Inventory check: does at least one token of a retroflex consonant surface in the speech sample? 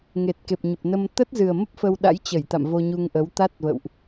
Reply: no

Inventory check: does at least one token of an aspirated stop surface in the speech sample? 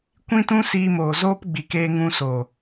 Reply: no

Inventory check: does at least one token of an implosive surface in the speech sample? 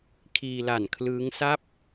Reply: no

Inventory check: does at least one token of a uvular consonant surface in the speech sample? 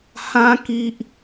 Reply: no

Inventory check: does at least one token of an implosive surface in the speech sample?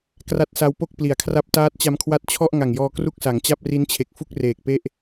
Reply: no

